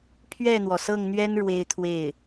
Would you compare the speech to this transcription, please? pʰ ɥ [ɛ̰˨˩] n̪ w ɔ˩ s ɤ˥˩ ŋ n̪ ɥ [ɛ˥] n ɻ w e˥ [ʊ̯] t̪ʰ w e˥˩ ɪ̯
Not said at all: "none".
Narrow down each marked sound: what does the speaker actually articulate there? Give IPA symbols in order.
ɛ˥˩, ɛ˥, ɪ̯

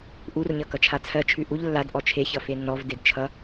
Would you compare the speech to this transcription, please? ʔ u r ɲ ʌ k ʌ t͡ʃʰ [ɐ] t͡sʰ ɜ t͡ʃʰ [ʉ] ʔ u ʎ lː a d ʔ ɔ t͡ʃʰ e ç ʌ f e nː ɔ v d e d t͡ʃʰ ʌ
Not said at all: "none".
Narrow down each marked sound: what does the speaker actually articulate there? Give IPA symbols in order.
a, ʉ

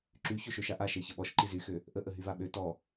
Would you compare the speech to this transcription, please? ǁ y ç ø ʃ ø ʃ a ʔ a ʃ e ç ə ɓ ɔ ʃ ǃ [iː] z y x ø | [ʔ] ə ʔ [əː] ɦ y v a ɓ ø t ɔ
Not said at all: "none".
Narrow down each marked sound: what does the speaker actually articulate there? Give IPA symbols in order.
i, ʔ, ə

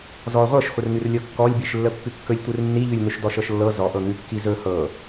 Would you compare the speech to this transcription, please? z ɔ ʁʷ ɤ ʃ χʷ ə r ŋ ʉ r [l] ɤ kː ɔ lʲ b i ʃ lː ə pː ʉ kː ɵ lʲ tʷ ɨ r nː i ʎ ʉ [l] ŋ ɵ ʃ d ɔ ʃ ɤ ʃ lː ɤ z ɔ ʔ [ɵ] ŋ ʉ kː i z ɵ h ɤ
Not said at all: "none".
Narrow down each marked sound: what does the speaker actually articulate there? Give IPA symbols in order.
lʲ, lʲ, ɤ

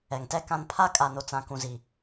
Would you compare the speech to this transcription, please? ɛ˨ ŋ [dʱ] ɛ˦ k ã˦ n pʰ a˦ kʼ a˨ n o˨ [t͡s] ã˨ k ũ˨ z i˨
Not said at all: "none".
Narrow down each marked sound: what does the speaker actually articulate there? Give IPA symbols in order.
t, t͡s

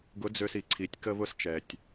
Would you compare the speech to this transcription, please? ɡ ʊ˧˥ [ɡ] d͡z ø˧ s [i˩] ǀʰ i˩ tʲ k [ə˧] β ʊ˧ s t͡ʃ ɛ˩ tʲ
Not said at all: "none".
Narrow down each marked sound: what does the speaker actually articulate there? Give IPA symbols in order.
none, i˩, ə˧

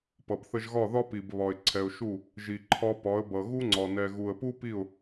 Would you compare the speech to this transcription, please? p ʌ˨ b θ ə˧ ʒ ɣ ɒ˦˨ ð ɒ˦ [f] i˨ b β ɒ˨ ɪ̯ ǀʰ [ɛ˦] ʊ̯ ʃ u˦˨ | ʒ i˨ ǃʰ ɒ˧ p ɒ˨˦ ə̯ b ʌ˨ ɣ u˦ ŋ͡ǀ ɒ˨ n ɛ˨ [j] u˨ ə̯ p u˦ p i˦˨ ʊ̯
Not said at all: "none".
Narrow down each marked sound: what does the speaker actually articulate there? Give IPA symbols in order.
p, ɛ˨, ɣ

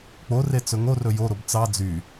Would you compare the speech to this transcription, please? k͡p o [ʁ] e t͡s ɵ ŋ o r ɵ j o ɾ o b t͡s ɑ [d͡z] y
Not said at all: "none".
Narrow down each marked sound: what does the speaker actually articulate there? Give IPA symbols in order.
r, d͡z

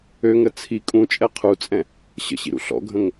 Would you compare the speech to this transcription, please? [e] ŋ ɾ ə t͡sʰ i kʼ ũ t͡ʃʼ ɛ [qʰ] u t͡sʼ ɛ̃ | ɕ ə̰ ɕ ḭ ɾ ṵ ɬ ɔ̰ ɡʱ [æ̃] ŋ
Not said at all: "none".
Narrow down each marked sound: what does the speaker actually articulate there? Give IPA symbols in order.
ø, qʰ, ə̃

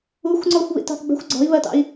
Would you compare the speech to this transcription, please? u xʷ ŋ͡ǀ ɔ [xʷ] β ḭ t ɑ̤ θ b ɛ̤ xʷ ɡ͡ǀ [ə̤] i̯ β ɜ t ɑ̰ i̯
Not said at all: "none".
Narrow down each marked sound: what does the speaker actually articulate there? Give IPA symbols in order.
xʷ, ɔ̤

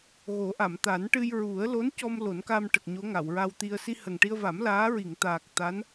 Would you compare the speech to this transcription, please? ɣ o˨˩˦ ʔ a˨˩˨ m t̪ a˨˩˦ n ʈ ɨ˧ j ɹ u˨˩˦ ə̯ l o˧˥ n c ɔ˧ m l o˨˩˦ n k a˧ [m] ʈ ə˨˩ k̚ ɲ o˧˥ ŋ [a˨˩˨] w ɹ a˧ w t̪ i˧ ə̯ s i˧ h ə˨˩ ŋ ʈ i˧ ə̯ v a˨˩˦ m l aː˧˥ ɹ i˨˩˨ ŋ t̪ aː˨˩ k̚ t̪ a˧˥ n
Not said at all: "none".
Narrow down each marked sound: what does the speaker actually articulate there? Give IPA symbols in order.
m, a˨˩˨

